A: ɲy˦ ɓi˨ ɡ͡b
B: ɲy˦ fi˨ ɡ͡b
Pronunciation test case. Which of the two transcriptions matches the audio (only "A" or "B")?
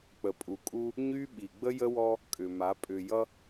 A